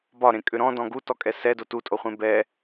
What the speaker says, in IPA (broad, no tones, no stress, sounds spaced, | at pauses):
b ɒ ɾ ẽ kʼ ʏ ɾ ɔ̃ d ɔ̃ ɡ u t ɔ kʼ ɛ s ɛ d o t u tʼ o χʷ ẽ b ɛ